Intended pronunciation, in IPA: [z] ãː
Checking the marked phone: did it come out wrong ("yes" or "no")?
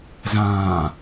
no